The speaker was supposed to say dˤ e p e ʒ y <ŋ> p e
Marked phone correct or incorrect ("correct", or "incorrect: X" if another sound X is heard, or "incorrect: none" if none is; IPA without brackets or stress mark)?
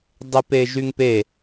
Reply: correct